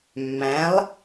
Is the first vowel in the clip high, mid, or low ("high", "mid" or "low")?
low